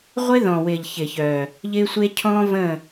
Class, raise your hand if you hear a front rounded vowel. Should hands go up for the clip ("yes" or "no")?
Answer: yes